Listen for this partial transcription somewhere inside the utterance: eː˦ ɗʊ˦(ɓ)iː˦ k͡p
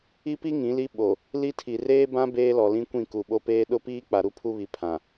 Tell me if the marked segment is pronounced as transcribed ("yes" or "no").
no